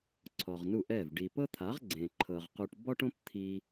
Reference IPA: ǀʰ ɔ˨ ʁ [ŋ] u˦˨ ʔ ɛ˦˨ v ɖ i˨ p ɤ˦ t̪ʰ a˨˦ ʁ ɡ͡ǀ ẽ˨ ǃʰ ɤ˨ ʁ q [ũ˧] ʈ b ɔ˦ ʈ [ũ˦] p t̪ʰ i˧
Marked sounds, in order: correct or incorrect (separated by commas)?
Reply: incorrect, incorrect, incorrect